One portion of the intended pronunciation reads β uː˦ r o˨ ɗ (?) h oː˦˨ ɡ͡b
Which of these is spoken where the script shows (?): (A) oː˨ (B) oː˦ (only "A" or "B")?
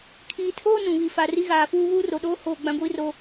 B